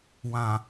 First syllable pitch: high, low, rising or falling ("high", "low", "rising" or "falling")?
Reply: low